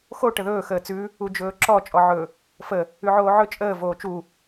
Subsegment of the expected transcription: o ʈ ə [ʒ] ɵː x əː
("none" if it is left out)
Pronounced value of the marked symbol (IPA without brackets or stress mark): ð